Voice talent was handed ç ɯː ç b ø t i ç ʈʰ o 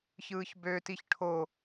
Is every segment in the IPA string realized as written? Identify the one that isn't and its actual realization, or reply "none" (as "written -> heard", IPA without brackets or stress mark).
none